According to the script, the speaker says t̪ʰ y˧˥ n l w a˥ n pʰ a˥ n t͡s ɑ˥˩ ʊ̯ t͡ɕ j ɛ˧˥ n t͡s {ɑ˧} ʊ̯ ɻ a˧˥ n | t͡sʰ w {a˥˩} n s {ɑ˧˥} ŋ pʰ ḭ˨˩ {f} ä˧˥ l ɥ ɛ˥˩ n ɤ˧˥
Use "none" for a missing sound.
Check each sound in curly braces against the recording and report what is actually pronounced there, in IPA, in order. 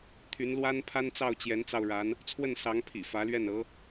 ɑ˧, ə˥˩, ɑ˧˥, f

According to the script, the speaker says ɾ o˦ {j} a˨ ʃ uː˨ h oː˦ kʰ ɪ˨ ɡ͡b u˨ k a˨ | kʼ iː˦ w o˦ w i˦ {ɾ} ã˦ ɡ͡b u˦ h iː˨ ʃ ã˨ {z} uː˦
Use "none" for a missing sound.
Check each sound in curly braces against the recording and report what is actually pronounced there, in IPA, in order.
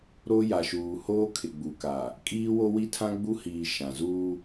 j, tʰ, z

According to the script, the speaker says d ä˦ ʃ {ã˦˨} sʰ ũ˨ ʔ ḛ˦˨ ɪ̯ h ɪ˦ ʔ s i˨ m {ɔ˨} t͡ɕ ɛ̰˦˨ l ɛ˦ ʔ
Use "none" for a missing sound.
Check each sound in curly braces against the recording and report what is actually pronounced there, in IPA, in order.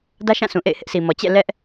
ã˦˨, ɔ˨

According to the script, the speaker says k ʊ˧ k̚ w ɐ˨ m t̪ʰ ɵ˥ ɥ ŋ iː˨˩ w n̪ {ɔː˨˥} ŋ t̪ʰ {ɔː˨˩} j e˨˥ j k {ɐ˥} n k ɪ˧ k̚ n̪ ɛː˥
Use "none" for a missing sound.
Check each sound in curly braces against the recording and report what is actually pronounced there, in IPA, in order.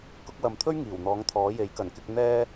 ɔː˨˥, ɔː˨˥, ɐ˨˩

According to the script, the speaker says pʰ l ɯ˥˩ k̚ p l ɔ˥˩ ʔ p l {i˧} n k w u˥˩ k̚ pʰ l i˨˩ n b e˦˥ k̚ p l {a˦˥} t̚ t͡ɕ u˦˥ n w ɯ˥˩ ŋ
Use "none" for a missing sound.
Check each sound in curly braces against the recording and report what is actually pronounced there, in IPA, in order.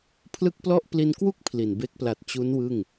i˧, a˨˩

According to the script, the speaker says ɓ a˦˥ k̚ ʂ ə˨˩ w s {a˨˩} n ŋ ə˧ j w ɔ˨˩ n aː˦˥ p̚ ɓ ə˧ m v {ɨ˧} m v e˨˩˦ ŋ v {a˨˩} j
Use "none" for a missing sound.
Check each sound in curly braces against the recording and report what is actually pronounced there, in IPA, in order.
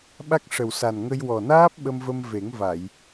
a˨˩, ə˧, a˨˩˨

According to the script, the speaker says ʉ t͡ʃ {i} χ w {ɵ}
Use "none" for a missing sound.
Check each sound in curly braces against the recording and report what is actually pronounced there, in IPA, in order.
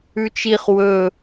i, ɵ

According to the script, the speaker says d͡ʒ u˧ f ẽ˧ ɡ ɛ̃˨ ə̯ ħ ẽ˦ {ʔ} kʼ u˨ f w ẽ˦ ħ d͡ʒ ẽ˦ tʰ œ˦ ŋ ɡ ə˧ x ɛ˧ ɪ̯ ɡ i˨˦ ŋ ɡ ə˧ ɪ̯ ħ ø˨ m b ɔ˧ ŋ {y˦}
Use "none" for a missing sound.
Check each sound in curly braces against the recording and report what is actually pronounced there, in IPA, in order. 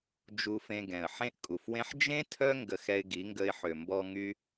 ʔ, y˦

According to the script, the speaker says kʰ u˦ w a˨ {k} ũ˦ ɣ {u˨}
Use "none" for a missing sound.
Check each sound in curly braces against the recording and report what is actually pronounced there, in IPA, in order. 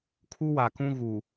k, u˨

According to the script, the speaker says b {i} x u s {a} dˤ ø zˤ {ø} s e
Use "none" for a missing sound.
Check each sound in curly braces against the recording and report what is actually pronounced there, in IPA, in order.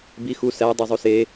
i, æ, u

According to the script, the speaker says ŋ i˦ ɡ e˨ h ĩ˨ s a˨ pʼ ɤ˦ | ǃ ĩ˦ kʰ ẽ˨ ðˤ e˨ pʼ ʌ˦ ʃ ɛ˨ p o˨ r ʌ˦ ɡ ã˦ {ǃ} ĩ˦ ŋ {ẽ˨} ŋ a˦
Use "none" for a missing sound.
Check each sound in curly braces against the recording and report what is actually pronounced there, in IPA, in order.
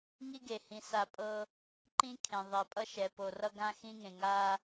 x, ẽ˨

